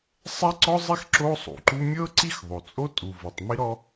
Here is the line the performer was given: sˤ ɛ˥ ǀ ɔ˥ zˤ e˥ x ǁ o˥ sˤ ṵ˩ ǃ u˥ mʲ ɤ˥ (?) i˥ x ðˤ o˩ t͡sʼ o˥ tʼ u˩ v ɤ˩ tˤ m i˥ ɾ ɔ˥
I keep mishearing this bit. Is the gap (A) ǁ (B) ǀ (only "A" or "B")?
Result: B